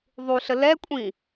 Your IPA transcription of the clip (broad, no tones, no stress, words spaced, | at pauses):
ðˤuɬə lɛkʷʼĩ